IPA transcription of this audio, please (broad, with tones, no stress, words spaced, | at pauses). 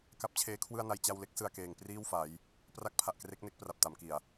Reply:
ka˦˥p̚t͡ɕʰeː˦˥kʰwɯ˥˩a̯na˧j t͡ɕa˧wle˦˥k̚ sɯ˧a̯keː˨˩ŋ priː˥˩wfa˩˦j | pra˥˩k̚pʰa˨˩ʔkre˦˥k̚ ne˦˥k̚pra˨˩p̚ ta˩˦mki˨˩a̯